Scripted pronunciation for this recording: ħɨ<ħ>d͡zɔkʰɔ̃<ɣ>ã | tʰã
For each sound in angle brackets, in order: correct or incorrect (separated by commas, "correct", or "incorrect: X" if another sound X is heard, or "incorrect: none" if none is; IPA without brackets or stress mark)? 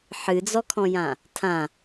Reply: incorrect: none, incorrect: j